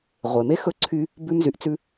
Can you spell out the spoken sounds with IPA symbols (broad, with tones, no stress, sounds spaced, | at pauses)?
ʁʷ e˩ m e˥ x ɵ˥ ǀʰ y˦ | b ʉ˦ m z y˨ ʔ t͡s ʉ˦